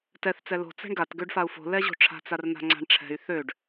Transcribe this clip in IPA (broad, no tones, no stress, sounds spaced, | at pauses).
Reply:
t ɛ θ t͡s ɛ l o̤ t͡s ɛ̤ ɳ ɡ a t ɡ ø ɖ f a u̯ f o̤ l ɛ ʑ o̤ ʈ͡ʂʰ a̤ t͡s a r n̪ a̤ ŋ͡ǀ a̤ ɳ ʈ͡ʂʰ ɛ̤ y̯ θ ø ɖ